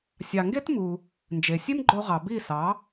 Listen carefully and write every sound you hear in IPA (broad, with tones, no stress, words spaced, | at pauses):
sʲɑ˩ŋɡe˥tmu˩ | nd͡ʒe˩sʲe˥mɡ͡ǃo˧ʁɑ˩ bi˥˩sɑ˩˥